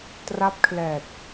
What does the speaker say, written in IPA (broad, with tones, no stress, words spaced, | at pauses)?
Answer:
tra˦˥p̚kʰlɛː˨˩t̚